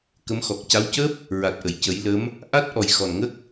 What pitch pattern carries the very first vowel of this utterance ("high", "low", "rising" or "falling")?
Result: rising